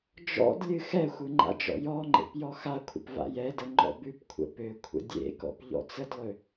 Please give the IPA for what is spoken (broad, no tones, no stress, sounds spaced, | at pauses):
d͡ʒ ɔ̰ d lʲ ɨ x ɛ xʷ ɨ ŋ͡ǃ a̰ d͡ʒ ɔ̰ j ɔ ŋ͡ǃ ḛ p j ɔ x a kʷʰ ə̰ p v a̰ j ɛ d ə ŋ͡ǃ ɔ̰ b ʉ p kʷʰ ə̰ p ø kʷʰ ə̰ dʲ ḛ k ɔ̰ p ʎ ɔ̰ t͡s ə d lˠ ø